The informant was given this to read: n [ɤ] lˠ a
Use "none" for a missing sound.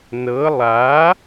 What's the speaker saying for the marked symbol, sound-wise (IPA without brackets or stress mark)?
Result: ɤ